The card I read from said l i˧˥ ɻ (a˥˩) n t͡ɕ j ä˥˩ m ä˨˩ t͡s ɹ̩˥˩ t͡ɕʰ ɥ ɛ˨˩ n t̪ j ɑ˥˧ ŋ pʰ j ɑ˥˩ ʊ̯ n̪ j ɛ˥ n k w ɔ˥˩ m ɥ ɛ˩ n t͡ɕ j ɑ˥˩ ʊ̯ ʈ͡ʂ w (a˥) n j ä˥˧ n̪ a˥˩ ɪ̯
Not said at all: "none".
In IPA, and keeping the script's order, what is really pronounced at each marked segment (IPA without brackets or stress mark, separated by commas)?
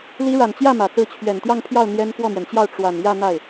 a˨˩, a˨˩